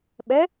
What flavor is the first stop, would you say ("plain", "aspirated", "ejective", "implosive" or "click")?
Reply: implosive